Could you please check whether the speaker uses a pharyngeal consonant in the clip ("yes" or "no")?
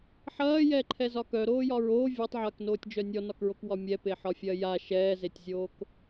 yes